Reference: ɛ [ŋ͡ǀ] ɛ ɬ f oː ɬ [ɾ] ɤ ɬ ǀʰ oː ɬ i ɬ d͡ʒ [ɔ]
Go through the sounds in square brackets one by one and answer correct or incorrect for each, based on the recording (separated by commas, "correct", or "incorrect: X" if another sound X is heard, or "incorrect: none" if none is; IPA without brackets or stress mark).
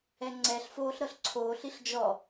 correct, correct, correct